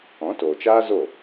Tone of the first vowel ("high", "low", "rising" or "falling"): rising